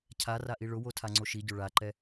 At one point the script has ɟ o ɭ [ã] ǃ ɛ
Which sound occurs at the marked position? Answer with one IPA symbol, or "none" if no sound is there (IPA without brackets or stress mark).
a